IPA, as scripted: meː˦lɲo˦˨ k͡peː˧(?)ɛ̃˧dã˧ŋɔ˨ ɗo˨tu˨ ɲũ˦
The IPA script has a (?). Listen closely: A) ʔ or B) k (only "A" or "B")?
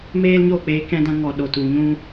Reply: B